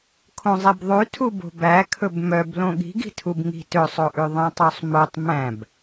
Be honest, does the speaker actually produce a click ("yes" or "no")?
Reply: no